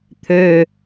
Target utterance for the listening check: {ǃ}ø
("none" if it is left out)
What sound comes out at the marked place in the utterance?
t̪ʰ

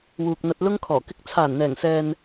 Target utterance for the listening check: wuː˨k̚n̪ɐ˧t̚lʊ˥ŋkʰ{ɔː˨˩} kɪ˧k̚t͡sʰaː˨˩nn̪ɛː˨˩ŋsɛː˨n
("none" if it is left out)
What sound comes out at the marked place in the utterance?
ɔː˨˩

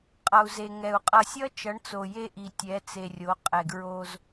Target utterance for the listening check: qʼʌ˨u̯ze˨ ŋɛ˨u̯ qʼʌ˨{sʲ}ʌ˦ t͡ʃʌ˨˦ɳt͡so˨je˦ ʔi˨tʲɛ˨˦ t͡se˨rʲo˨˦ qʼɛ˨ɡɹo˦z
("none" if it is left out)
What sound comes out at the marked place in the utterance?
sʲ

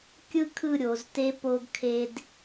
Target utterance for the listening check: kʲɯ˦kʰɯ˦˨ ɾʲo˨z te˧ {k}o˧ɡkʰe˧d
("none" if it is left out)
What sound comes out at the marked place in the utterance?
p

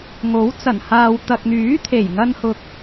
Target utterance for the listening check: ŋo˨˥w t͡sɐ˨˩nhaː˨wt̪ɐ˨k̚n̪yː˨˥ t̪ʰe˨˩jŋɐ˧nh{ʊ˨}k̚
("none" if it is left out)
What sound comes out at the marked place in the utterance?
ʊ˨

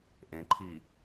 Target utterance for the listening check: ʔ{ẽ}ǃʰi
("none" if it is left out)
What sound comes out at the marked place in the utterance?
ẽ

